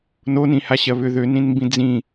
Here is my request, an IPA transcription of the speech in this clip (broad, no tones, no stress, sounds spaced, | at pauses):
n o n ĩ h a ɕ ɜ β ʏ ð ø n ĩ n m b ĩ d͡z ĩ